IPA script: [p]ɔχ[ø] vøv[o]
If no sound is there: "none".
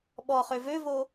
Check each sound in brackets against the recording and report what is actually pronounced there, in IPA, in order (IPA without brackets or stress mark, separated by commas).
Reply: ɓ, ø, o